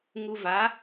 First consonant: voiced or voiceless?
voiced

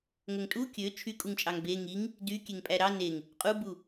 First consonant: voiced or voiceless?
voiced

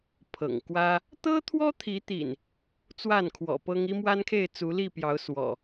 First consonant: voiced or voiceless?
voiceless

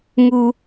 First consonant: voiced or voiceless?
voiced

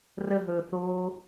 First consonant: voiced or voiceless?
voiced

